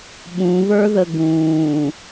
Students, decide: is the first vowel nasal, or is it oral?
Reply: nasal